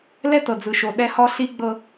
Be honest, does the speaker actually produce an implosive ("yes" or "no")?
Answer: yes